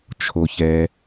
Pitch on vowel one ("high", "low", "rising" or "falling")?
low